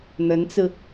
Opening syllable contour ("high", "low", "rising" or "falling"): rising